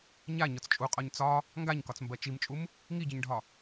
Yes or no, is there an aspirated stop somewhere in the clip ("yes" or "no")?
no